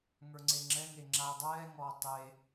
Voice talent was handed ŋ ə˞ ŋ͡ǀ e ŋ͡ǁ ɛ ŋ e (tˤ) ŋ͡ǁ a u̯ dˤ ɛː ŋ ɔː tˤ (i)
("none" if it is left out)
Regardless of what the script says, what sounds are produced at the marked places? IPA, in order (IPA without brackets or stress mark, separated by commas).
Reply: none, e